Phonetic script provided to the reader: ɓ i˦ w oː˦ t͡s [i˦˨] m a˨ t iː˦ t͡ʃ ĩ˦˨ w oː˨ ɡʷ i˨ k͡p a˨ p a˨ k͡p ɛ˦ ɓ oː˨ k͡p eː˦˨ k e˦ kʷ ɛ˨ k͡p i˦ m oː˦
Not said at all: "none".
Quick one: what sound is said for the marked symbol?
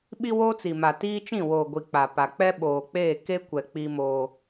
i˨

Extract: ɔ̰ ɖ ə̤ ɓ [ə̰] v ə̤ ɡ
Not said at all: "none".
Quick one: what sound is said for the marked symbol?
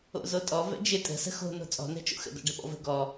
ɔ̰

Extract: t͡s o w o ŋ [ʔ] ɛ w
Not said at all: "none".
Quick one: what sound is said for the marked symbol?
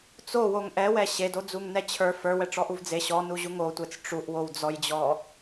ʔ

